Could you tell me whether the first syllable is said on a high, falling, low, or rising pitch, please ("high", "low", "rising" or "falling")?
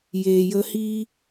low